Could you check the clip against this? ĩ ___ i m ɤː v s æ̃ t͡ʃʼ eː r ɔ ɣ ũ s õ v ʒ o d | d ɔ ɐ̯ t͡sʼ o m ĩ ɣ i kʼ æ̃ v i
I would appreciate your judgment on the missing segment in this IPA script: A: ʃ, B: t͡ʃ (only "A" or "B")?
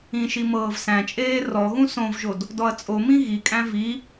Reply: A